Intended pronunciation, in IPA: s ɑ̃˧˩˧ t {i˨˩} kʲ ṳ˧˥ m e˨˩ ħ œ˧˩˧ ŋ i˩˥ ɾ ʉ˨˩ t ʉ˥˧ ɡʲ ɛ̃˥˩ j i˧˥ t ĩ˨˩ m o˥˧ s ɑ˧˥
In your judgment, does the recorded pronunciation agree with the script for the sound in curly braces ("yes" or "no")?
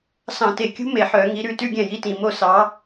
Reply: no